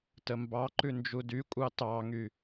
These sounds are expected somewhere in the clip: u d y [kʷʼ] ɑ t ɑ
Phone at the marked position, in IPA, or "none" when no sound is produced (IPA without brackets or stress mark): kʷʼ